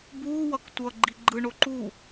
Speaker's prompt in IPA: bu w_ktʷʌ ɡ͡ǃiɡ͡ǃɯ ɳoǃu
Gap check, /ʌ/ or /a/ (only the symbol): ʌ